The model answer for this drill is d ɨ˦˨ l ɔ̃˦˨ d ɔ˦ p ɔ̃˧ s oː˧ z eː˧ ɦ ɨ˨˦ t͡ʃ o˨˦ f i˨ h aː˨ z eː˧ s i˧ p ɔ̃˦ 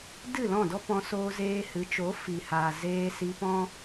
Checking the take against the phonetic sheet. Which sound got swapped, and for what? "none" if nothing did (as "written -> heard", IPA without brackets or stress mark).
ɦ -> h